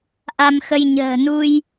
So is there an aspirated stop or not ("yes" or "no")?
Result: no